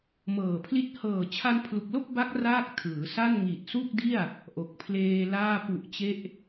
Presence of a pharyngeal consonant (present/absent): absent